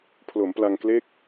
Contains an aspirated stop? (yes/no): yes